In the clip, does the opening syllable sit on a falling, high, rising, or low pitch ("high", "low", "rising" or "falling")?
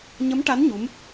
rising